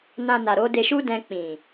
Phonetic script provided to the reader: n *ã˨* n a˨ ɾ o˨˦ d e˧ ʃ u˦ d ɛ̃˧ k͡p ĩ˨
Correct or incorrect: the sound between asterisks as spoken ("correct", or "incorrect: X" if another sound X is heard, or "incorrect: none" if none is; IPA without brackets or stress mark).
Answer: incorrect: ã˧